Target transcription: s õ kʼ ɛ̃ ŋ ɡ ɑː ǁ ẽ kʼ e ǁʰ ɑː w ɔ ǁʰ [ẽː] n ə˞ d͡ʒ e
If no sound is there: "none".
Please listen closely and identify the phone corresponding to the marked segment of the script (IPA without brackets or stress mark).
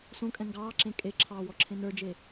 ẽ